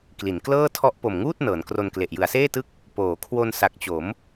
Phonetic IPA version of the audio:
kli˩˦n klɤː˥˩tʰɔ˦˥ʔ po˨˩mŋuː˥˩t̚ nɤː˩˦nkro˧nkle˨˩ʔ jɯ˩˦a̯seː˥˩tɯ˦˥k̚ | poː˩˦kʰwo˧n sa˨˩k̚t͡ɕo˩˦m

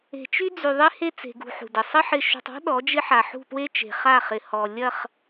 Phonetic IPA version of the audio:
e̤˨t͡ʃy˦d͡zy˨ ðˤe˦he˦t͡se̤˨ɡṳ˨ ħṳ˨dɪ˨ sˤɪ˦ ħɪ˨ʃṳ˨tˤɔ̤˦ ɗɔ˨˦d͡ʒɪ˦ħa˨ ħṳ˦˨pwe˦t͡ʃe̤˨χa˦˨ χɪ˨hɔ˨ lʲɐ˦˨χ

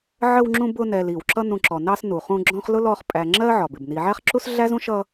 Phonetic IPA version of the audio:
ʕə˦wŋ͡ǁũ˦ bʊ˦nɛ˨l i˩wǁʌ˦ nũ˨ǁɔ˩nɑ˦s nu˩χũ˦ɡ͡ǁɔ̃˥χ lʊ˥lɔ˦χ pʼæ˨ŋ͡ǁɜ˥ʕɒ˩ bɪ˩bni˨ʕæ˥χǁu˥s ɮæ˥zũ˥ʃʌ˦

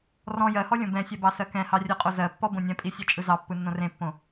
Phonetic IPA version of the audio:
rɔ̃ jɜhɔ lʲõbɛ̃sʲɛ bɑsɜkɛ̃hɑ rʲɜqʼozɜpːɔ bõnʲɛ̃pʼi sʲɛt͡ʃʼɯzɑpːɯ nːõrẽpːõ

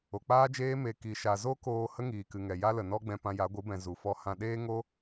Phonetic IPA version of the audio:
o˨k͡paː˦d͡ʒeː˦ me˧ ki˨ʃa˨zo˦koː˧ hə˦ŋiː˨kɨ˨ŋɛ˨ ja˦lə˨nɔ˦ɡ͡bɛ̃˧ pã˧ja˨˦ɡʷɨ˨˦bɛ̃˨ zu˨fɔ˧ hã˧ ɗeː˦ŋo˦

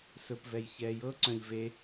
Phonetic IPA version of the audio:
sɵpvɛj çɛːjɤǀœ̃ʎ ve

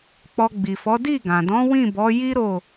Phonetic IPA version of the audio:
k͡pɔ˧ɡ͡bi˨fɔ˨˦ di˦˨ɡã˨dɔ̃˨˦ wĩ˦˨bɔ˨˦ji˦ ɾo˦˨

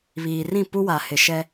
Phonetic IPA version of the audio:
βiː˨rĩ˦˨pu˦wa˨ hɪ˨ʃɛ˦

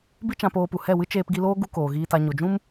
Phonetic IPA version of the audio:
bi˦t͡ʃã˧poː˧pu˨ hɛ˦˨wɨ˦ t͡ʃeː˧pɡi˧loː˦ ɡu˦koː˨ɣiː˧ta˧ ɲo˨d͡ʒũ˦m

